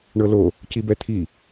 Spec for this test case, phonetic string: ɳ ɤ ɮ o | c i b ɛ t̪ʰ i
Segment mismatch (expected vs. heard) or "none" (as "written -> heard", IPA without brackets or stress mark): ɮ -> l